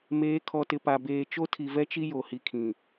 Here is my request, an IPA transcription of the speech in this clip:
m eː˨˦ kʰ ɔ˨ t ɪ˨ p a˨ b eː˨ t͡ʃ o˦ tʰ i˨ v ɛ˦ t͡ʃ i˦ j o˨ h i˨ kʰ ĩ˨

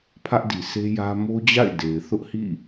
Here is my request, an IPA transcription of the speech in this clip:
pʰ ä˦ ʔ d i˨ s e˦ j ä˦ m o˦ d͡ʑ a̰˦˨ ɪ̯ d e˨ ɪ̯ θ ʊ˦ ʔ h ḭ˦˨

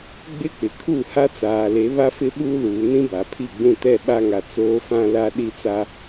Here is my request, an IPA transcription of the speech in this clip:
ɡ͡b ɪ˦ k͡p ɪ˨ kʰ u˦˨ h a˦ t͡s aː˨ l e˨˦ β a˦ f ɪ˦ ɓ uː˦ l uː˨ n ĩ˦ b a˨ pʰ i˦˨ ɡ͡b ũ˦˨ t ɛ˦˨ ɓ a˦ ŋ a˨ t͡s oː˦ f ã˦ l a˦ ɗ i˦ t͡s a˦

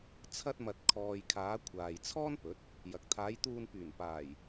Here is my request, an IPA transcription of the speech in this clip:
t͡sʰ ɐ˧ t̚ m ɐ˨ t̚ kʰ ɔː˨ j kʰ aː˨˧ kʷʰ aː˨ j t͡sʰ ɔː˥ n p ɵ˨˥ t̚ | j ɐ˨ k̚ t̪ʰ aː˨˧ j t̪ uː˧ n p yː˨˩ n p aː˨˩ j

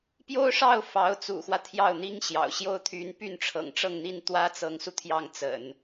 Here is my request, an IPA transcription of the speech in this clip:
p j o˥ ʊ̯ ʂ ɑ˥˩ ʊ̯ f ɑ˧˥ ʊ̯ t͡s ṵ˨˩ x w ä˦ t̪ʰ j ɑ˥˩ ʊ̯ n̪ i˥ ŋ ɕ j ɑ̰˨˩ ʊ̯ ɕ j o˥˩ ʊ̯ t̪ʰ y˧˥ n p y˥˩ n ʈ͡ʂʰ ɤ̰˨˩ ŋ ʈ͡ʂ ɤ˥˧ ŋ n̪ i˥˩ n t̪ w ä˥ t͡s ɤ˧˥ ŋ s u˧ t̪ʰ j ɑ˥˩ ŋ t͡s ə̰˨˩˦ n

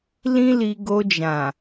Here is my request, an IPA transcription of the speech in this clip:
l ĩ˦ l i˧ ɡ o˧ d͡ʒ ã˨

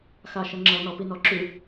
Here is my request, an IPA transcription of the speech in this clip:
x a ʃ ə ŋ͡ǁ ʌ n ɔ p i n ɔ ǁ ʉ

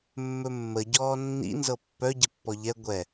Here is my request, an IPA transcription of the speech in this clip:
mː ɵ mː ə ɟ ɔː nː ḭ n z ɤ pː œ ɟ ə pː ɔ ʎ ɛ ɡʷ ɛ

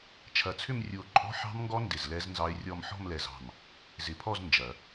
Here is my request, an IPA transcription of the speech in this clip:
t͡ʃʰ ɐ˨˩˦ t͡sʰ ʏ˥˧ m rʲ u˧˩ o̯ ǃʼ ɔ̤˦˥ ħ ɑ̤˦˥ m ŋ ɡ ɔ˦˥ n d ɪ˧˩ z l ɛ˦˥ z n z ɑ˦˥ e̯ rʲ ɔ˥˧ m ħ ɔ̤˥˧ m l ɛ˧˩ z ɑ̤˧˩ m | z ɪ˨˩˦ pʰ ɔ˥˧ z n d͡ʒ ɐ˨˩˦

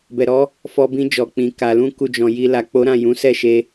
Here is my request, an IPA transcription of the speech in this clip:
b ɛ˨ ɾ ɔ˨˦ | f ɔ˧ b ĩ˧ d͡ʒ ɔ˨ k͡p ĩ˨ k a˨ l ũ˧ k u˧ d͡ʒ ɔ̃˨ j i˧ l a˨ k͡p o˨˦ ɾ ã˦˨ j ũ˨˦ s ɛ˦˨ ʃ e˧

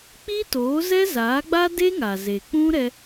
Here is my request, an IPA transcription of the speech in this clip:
k͡p i˦ t oː˨˦ z ɛ˦ z aː˨˦ ɡ͡b a˦ d e˦ ŋ a˨ z e˨ k͡p ũ˦ ɾ ɛ˦

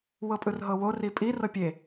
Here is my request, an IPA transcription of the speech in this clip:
w ɤ pʼ ɯ r ɦ ɤ w o r i pʼ i r ɤ pʲ e

